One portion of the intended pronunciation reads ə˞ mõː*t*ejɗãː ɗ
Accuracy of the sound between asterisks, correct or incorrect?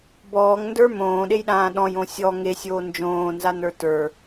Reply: incorrect: ɗ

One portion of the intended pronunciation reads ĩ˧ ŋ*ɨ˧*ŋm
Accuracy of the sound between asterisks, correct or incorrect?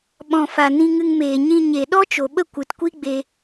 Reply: correct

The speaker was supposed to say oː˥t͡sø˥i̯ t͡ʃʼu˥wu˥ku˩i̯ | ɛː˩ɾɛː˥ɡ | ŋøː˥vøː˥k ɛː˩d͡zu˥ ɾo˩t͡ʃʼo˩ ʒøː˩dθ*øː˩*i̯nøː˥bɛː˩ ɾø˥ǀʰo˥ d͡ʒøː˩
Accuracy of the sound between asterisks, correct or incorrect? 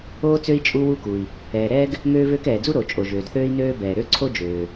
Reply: incorrect: øː˥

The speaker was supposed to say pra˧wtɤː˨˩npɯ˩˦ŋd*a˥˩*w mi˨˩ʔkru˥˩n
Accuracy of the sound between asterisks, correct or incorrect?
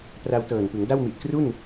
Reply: correct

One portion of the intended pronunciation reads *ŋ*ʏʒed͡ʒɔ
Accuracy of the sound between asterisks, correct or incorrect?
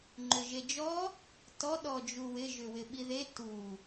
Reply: incorrect: ŋ͡ǃ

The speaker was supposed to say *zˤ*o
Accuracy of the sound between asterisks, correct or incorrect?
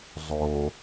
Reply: correct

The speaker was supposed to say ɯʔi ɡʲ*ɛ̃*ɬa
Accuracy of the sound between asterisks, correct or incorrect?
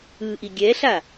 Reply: incorrect: ɛ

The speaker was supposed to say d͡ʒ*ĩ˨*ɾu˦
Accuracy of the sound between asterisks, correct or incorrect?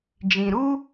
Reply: correct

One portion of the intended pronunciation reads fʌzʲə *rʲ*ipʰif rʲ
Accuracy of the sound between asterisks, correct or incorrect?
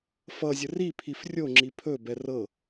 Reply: incorrect: r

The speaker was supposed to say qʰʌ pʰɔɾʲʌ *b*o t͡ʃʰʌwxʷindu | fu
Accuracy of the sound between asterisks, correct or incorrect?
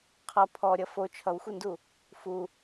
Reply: incorrect: f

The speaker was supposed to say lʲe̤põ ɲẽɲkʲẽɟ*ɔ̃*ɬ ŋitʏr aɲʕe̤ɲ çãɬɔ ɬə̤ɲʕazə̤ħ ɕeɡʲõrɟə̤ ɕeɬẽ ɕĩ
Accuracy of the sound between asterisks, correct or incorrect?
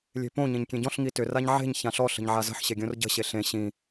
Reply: correct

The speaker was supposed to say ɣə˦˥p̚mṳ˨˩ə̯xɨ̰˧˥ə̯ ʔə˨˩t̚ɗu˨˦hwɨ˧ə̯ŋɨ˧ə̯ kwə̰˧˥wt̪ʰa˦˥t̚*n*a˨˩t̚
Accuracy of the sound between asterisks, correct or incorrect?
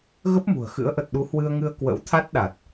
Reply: incorrect: ɗ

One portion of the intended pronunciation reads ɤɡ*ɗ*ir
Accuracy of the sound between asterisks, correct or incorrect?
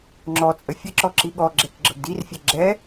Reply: incorrect: d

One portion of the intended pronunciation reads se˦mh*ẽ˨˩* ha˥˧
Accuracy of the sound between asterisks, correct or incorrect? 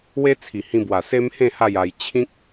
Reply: incorrect: ẽ˥˧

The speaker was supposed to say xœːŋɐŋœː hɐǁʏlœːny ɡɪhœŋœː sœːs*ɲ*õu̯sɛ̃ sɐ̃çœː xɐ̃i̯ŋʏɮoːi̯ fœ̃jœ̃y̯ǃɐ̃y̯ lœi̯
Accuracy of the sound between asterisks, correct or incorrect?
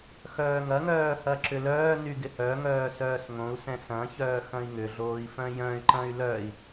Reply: incorrect: ŋ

